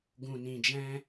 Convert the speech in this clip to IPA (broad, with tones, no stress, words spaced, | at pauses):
ɡũ˨nĩ˨d͡ʒɛ̃˧